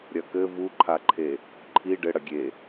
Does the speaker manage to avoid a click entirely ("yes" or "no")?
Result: no